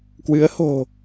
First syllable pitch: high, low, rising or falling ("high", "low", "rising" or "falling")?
rising